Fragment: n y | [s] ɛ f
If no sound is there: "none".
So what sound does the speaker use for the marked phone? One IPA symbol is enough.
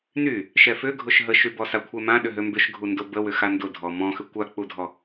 ʃ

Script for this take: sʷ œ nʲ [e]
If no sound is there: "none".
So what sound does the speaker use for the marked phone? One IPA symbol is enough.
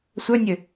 ɘ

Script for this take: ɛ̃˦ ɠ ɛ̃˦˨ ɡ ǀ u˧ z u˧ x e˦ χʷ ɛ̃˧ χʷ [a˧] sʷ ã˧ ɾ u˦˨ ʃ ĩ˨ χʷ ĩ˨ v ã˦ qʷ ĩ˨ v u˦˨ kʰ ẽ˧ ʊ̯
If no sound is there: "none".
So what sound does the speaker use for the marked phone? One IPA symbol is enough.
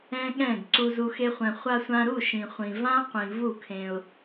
a˧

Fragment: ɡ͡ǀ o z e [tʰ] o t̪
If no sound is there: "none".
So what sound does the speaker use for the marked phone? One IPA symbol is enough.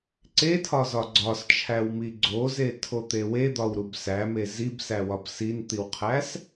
tʰ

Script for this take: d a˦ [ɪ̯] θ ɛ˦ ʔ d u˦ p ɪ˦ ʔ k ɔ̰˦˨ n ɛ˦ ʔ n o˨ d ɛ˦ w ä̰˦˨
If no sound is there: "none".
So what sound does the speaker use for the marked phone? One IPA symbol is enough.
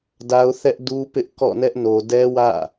ʊ̯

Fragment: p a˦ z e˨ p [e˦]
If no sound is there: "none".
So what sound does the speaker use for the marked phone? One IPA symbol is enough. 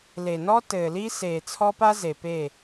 e˦˨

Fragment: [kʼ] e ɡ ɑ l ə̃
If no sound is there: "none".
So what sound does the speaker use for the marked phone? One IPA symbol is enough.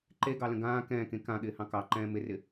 ǃ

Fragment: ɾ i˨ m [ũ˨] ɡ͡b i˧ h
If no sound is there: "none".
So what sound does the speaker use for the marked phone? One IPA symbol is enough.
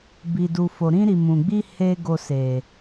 ũ˨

